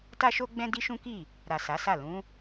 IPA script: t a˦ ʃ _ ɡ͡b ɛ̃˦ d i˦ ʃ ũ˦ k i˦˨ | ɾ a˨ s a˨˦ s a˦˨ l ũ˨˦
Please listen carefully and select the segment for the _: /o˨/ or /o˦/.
o˦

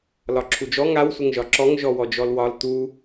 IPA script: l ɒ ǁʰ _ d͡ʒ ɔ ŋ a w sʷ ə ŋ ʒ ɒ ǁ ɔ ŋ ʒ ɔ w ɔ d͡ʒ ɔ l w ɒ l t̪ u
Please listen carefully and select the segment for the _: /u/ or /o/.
u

